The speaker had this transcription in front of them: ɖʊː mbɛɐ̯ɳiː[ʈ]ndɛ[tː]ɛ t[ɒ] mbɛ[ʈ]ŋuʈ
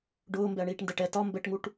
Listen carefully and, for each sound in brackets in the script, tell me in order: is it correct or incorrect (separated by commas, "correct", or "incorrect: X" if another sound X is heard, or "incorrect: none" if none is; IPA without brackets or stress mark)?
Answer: correct, incorrect: ʈ, correct, correct